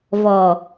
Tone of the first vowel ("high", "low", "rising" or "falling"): low